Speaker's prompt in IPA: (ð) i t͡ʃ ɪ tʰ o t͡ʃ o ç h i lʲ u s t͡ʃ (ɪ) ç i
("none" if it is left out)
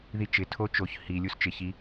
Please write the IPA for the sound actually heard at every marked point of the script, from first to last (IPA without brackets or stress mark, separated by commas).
ð, ɪ